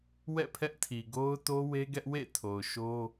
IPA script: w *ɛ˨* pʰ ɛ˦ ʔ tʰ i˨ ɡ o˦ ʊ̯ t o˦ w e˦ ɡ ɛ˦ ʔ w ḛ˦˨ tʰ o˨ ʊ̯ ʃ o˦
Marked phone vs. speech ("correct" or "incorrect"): incorrect